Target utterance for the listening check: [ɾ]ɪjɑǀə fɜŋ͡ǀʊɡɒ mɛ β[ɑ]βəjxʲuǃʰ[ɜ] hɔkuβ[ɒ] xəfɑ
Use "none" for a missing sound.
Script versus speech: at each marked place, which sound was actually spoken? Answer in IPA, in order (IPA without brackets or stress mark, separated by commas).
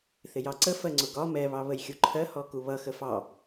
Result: θ, ɑ, ɜ, ʌ